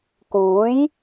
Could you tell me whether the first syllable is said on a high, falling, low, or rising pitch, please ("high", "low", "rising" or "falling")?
rising